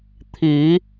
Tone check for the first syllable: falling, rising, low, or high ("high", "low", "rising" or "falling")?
rising